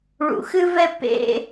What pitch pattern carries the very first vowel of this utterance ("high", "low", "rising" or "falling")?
low